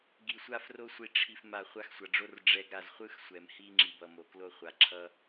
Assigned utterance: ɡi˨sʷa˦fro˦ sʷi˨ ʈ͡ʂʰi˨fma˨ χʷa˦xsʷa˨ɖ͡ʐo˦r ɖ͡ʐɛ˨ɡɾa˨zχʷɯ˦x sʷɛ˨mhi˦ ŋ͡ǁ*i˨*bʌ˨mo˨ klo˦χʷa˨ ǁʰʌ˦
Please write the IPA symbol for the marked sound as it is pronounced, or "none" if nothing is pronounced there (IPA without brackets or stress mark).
i˨